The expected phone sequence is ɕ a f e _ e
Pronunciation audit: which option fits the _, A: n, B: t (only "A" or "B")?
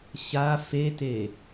B